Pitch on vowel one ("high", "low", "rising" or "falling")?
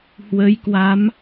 rising